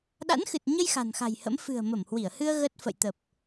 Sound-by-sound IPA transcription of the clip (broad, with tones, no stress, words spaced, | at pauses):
ɗa̰˧˥nxɨ˨˩t̚ɲə˧j xa̤˨˩nxa̤˨˩jhə̰˧˥m fɨ̤˨˩ə̯mə˧˩mhwi˧˩ə̯hɨ˧ə̯ ɣə˦˥t̚ fə̰˧˨jt̪ə˨˩p̚